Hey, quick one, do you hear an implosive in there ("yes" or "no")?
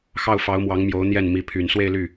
no